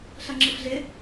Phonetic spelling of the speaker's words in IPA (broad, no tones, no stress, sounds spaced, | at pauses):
ɬ ɐ ŋ͡ǁ ɯ f ɮ ɪ